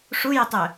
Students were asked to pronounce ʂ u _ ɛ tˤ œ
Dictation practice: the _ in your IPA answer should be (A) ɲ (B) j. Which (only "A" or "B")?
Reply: B